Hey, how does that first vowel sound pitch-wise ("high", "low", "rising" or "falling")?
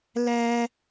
high